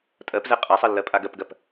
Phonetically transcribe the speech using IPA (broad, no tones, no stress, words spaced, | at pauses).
tʼɜpzɛ qʼasˤɜlːɜpʼa ɡɜpɡɜp